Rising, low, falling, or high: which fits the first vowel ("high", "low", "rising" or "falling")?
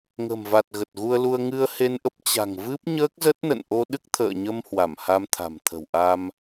low